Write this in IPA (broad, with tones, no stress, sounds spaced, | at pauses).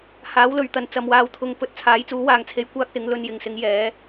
h aː˨˥ w l ɵ˨ ɥ t̪ ɐ˨˥ n t͡s ɐ˨ m w aː˨˧ w t̪ʰ ʊ˨˧ ŋ p ɵ˨˥ t̚ t͡sʰ aː˨˥ j t͡s uː˨˥ w aː˨ ŋ t͡sʰ e˧ j kʷ aː˥ k̚ s ɪ˨˥ ŋ l ɵ˧ n j ɪ˨ ŋ s ɪ˨˥ ŋ j ɛː˨˥